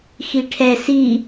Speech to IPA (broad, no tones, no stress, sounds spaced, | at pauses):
x i ʈʰ ɛ s i